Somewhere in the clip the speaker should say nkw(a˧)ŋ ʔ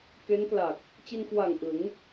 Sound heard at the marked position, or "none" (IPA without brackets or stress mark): a˨˩